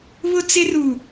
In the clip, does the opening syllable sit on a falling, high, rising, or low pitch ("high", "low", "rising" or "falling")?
high